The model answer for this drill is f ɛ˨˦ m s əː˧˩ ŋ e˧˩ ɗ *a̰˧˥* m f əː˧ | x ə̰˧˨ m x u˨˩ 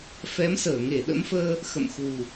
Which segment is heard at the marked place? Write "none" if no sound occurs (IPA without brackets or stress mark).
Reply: ə̰˧˥